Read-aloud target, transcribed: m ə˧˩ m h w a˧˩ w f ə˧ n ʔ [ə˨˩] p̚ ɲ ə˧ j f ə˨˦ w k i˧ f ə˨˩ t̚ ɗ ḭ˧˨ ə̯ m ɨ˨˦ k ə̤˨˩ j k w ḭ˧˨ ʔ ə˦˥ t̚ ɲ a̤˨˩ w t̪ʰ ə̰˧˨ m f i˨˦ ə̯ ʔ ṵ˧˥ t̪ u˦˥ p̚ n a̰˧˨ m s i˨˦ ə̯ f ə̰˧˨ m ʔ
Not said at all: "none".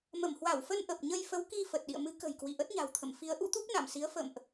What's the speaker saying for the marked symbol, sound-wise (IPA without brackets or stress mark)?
ə˨˩